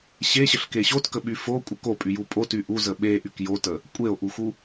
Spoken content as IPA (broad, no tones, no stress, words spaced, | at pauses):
ɕeɕəɬke ɕotkəɓy fokʷʼə kopʼyju pʼoty ʔuzə ɓeʔyk jotə | kʷʼeo̯ʔuxu